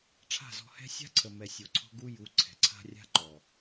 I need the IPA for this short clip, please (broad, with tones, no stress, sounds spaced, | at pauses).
ʈ͡ʂʰ a̤˦˨ z ɔ̤˧ h ɛ̤˦ sʲ a̤˦ ǀʰ ə˨ m ɛ˨ sʲ o˨ ǀʰ ɔ̤˧ ɡ u˧ j u˨˦ ǀʰ ɛ̤˨ ǀʰ a̤˦ rʲ a̤˦ ǃ ɔ˨